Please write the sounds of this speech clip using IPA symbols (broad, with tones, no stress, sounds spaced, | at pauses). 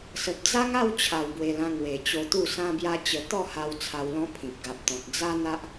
s ə˨ p̚ d͡z a˦ ŋ a˥˧ w t͡ɕʰ a˨˩ w b w e˧ l ã˧ ŋ w e˨˩ t͡ɕ o˧ t̪ u˥˧ s ã˦ b j a˦ t͡ɕ ə˧ t̪ ɔ˥˧ h a˧ w t͡sʰ a˧ w l ɔ̃˦ pʰ ĩ˨ p̚ ɡ a˨ p̚ t̪ ɔ̃˨ t̚ d͡z a˦ n̪ a˦ ʔ